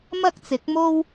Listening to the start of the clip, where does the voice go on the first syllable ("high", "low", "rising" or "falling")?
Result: high